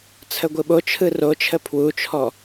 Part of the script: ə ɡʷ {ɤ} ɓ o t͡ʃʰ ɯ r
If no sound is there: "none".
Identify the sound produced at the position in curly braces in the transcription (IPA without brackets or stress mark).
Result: ɯ